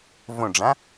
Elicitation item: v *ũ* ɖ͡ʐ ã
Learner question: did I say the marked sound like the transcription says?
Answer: no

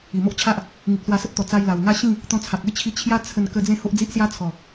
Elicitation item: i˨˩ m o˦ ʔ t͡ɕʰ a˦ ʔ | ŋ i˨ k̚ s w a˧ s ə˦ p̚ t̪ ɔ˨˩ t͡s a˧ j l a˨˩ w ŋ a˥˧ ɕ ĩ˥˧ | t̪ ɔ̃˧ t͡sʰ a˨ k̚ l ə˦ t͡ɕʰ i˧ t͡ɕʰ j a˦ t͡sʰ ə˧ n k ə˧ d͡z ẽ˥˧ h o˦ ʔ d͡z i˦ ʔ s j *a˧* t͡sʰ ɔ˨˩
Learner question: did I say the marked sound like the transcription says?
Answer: no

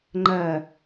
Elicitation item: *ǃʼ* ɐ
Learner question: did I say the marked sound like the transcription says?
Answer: no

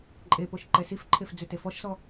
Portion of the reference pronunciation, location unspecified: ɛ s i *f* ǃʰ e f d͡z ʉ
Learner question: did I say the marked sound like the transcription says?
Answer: yes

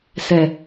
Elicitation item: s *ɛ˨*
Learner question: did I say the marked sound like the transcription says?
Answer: yes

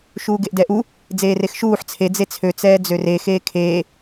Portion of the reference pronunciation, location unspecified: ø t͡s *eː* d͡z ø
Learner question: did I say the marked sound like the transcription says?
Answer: no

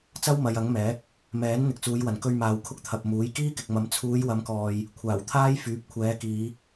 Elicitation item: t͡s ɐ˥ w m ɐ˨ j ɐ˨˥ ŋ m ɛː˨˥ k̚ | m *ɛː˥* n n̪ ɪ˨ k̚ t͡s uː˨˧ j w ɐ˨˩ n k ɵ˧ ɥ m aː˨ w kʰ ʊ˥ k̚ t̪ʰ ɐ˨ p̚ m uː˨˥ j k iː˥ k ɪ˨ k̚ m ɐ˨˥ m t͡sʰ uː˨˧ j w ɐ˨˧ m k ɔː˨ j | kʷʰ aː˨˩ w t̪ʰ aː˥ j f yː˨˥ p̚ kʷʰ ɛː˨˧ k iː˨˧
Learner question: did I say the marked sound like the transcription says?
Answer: no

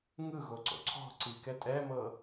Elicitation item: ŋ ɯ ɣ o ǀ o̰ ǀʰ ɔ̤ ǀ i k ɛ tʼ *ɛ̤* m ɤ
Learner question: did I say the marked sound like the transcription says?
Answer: no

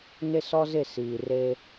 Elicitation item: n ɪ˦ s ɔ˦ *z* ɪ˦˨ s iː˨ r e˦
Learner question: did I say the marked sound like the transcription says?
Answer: yes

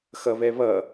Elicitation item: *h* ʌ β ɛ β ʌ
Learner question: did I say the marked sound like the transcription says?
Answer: no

